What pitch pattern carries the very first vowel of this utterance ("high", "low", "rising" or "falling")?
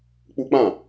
high